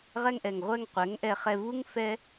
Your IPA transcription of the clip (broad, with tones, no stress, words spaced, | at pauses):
ʁɛ˧ŋʔɛ˨ŋʁʷɛ˧ŋ qʷɛ˨˦ŋʔɛ˧χɛ˧ vu˦ŋfɛ˦